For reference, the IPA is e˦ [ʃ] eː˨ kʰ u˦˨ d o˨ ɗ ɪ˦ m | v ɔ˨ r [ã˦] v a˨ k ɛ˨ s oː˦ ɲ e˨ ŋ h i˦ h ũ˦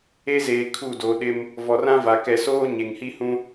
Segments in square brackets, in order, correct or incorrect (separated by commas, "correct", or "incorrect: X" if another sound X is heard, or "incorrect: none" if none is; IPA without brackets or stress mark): incorrect: z, correct